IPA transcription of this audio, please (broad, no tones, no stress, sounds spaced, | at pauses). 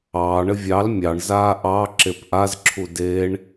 ɑː ɳ ɘ vʲ ɑ l mʲ ɑ ɳ z aː ʔ ɑ ǁ e p ʔ a z ǁʰ u d e ɳ